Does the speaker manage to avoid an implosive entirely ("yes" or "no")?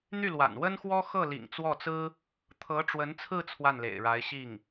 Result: yes